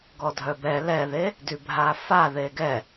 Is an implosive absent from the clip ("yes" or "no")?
yes